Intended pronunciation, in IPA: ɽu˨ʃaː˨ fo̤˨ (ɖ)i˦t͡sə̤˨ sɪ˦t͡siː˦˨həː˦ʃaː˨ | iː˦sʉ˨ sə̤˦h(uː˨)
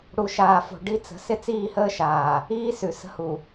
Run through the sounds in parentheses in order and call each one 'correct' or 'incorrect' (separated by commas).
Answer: correct, incorrect